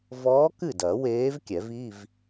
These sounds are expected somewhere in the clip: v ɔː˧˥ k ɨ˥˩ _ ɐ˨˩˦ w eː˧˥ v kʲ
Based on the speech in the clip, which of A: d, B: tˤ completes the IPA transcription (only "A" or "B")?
A